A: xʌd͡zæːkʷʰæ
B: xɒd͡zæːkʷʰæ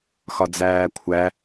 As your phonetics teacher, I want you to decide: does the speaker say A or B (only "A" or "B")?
B